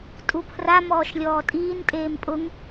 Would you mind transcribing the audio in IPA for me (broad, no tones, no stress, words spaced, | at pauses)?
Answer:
tʼupʰra mɔːʃlʲɔːtʼiːn tʼeːmpʼʊŋ